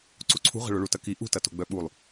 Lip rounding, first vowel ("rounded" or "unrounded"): rounded